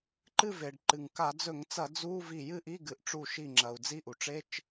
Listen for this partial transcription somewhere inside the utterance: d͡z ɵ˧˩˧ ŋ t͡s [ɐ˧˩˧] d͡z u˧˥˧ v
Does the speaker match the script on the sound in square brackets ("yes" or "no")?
yes